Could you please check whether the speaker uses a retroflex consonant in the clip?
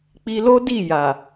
no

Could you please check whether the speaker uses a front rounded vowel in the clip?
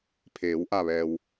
no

